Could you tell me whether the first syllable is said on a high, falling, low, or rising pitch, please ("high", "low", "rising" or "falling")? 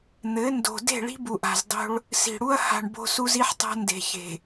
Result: rising